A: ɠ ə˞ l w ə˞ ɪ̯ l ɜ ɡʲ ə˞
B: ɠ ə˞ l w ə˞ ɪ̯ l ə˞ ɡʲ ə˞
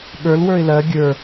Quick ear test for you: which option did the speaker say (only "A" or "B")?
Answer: A